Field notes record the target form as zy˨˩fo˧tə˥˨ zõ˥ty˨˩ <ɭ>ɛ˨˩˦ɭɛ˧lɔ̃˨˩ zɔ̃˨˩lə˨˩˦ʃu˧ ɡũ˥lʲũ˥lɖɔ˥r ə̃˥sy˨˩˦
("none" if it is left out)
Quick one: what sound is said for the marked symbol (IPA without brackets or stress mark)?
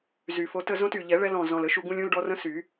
ʎ